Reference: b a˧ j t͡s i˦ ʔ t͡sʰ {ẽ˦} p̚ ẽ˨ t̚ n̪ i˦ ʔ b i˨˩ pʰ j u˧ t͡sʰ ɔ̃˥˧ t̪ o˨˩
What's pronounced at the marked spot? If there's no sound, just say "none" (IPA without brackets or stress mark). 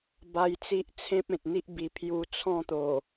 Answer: ẽ˦